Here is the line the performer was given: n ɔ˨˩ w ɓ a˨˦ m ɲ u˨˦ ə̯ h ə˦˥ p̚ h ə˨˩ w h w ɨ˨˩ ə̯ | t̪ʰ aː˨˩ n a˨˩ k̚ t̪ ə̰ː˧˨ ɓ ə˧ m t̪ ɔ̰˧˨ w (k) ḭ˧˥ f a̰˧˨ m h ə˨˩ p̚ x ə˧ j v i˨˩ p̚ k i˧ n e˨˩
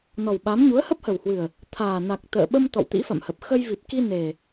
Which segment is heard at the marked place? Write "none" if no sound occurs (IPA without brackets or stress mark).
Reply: t̪